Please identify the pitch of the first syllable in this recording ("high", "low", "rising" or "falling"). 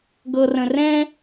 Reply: low